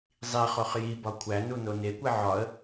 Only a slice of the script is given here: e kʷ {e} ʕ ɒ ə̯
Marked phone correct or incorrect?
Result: correct